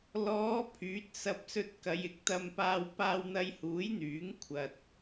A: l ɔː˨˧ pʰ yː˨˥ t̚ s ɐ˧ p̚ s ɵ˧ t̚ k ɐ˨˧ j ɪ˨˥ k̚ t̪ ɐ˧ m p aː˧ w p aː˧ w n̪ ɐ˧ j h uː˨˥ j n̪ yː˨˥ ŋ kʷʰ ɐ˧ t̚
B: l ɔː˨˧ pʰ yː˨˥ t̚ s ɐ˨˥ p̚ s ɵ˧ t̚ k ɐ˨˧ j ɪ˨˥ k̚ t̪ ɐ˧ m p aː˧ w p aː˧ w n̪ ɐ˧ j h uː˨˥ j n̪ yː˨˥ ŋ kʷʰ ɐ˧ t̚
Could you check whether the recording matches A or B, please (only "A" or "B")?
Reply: A